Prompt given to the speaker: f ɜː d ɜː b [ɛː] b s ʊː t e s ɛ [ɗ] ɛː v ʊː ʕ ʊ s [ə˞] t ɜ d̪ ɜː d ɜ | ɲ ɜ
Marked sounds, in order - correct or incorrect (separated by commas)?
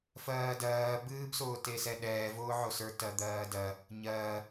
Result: incorrect, correct, correct